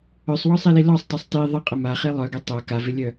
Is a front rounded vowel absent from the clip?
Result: no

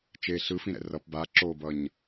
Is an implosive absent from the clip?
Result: yes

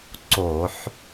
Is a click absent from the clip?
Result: no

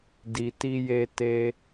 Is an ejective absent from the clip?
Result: yes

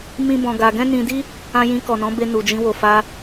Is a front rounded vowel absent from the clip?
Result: yes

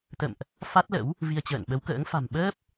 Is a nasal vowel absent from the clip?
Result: yes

